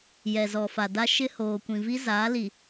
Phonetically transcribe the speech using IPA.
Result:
j ɛ˨ z ɔ˨ f a˨ d a˦ ʃ ɪ˦ h oː˨ kʷ ĩ˨ v i˦ z aː˨˦ l i˨

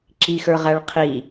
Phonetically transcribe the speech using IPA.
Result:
ǁ i x ə˞ ʁ æ ɭ qʰ i

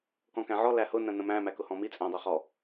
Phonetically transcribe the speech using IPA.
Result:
k ɔ̃ k æ̃ ʕ ɔ l æ h ʊ n ə̃ n ə̃ m æ̃ m æ k ʊ h ɔ̃ m i t͡sʼ æ̃ dˤ ʊ χ ɔ

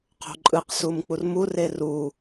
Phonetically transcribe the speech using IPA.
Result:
qʰ o̤ ǃʼ ɯ q s u m k͡p u r m u r e r u

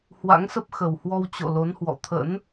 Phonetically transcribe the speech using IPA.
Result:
h w a̰˧˥ ŋ s ə˦˥ p̚ x ə˨˩ w h w ɔ˧ w t͡ɕ o̰˧˨ l o˨˦ n h w ɔ̰˧˨ t̪ʰ ə̰˧˥ n

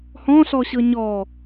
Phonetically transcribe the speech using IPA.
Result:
h ɔ̃ ɬ ɔ ɕ ɤ ɲ ɔ

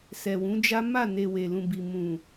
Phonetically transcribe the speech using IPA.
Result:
s ɛ˨ w ũ˨˦ d͡ʒ a˦ m a˦˨ n e˨ w e˨ l ũ˨ b i˨ m ũ˨

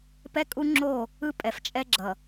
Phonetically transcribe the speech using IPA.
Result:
p ɛ˦ kʼ u˦ ŋ͡ǁ o˦˨ | ɯ˦ pʼ ɛ˨ f t͡ʃʼ ɛ˦ ɡ͡ǁ ʌ˨

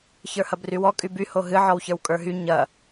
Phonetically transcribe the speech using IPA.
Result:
ç ə˞ h ɐ b r y w ɔ kʼ y b y h o ɦ ɨ ʕ ɔ w ç ə˞ w kʼ ə˞ ɦ y ɲ ɐ

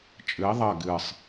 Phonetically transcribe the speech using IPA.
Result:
t͡ʃʼ ɨ i̯ ðˤ ɐ ɡ ɨ sˤ

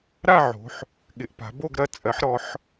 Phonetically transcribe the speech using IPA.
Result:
ɾ a˦˨ ʕ o̤˩˧ ħ | ɠ ɪ˩˧ ʔ p a̤˩˧ b o˦˨ ɡ ɾ ɐ˦˨ t͡sʼ ɜ˩˧ ħ ɾ ɔ˩˧ ħ

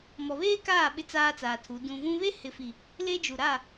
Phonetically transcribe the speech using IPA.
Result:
m ɔ˨ β eː˦ k aː˦˨ ɓ ɪ˦ t͡s aː˦ t͡s aː˨ tʰ u˨˦ d ũ˨ v ũ˦ β e˦ h ɪ˨ f i˨ | l e˦ d͡ʒ u˨ ɾ a˦˨

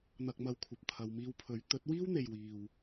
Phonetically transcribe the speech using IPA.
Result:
n̪ ɐ˨ k̚ m ɐ˨ w kʷʰ ɐ˨ p̚ t̪ʰ ɐ˨˧ w m iː˧ w pʰ ɵ˨˥ ɥ t̪ ɵ˨˥ t̚ w iː˥ w n̪ e˨ j w iː˨ w

